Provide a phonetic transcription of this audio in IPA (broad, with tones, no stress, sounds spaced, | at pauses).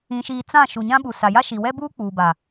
ĩ˨ ʃ iː˨ t͡s ã˦˨ ʃ u˨ ɲ ã˦ ɓ u˨ s a˨ j a˦ ʃ i˨ w ɛ˦ b uː˦ k͡p uː˨ b a˨